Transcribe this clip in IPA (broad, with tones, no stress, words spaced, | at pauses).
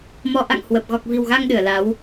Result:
mɔ˧ ʔa̰˧˨ŋ hwə˨˩p̚ ɣɔ˨˩k̚vi̤˨˩wɣa˧ŋ ɗɨ˧˩ə̯la˨˦w